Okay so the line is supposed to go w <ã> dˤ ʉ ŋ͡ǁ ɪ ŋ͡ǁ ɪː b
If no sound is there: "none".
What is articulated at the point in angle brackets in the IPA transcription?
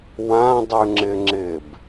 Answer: ã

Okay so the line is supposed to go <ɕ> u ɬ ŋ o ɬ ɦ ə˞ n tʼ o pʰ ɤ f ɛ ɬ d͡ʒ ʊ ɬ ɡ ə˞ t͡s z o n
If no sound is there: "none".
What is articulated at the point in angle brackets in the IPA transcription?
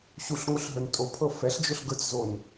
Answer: ɕ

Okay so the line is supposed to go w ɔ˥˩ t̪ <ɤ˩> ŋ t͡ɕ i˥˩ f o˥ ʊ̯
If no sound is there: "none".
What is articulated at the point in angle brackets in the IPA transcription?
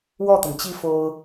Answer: ɤ˩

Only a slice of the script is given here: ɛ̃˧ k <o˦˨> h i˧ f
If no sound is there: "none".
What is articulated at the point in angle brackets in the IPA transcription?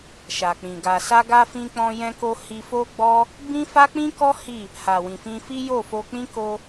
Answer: o˧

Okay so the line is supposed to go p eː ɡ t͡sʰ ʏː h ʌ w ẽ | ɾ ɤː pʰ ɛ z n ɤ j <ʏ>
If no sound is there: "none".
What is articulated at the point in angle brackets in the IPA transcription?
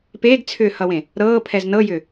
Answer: ʏ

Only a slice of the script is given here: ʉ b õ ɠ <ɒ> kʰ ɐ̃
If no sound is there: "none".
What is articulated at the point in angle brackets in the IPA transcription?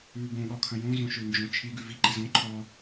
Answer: ɒ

